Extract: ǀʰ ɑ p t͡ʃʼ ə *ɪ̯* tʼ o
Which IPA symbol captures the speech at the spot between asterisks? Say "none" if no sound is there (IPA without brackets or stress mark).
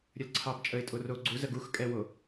ɪ̯